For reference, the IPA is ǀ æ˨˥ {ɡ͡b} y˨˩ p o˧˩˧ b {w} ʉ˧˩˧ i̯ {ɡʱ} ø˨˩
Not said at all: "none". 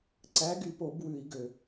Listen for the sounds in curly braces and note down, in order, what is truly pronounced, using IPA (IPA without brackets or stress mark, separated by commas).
ɡ, w, ɡ